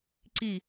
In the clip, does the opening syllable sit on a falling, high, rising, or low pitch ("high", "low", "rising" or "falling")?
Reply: falling